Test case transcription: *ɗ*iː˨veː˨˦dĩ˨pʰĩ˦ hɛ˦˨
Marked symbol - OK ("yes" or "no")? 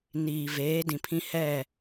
no